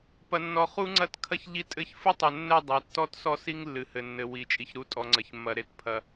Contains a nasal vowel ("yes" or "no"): no